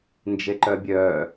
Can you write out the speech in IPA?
n d͡ʒ e ǃ œ bʲ œː

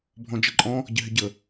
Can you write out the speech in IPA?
bʱ ɔ̃ d͡ʒ ə ǃʼ ɔ̃ | ɟ ɪ ɦ ɪ ɟ ə

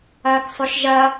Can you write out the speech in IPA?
ɐː k sˤ ʏ ʃ ʒ ɐ

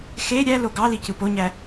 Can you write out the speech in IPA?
x e ɾʲ æ l o ɡ ɑ l i c ɯ p o ɲ æ

